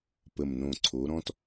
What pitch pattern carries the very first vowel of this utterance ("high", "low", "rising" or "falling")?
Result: low